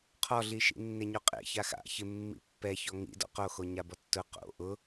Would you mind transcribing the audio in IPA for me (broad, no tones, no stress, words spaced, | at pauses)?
qʰɔɮi ʃḭnːeɲoqʼḛ çaxa̰ çɪmːḭ pːɛçɔ ŋḭ dɔ̰qoxo ɲabɔtːʊ qo̰ ʔʊ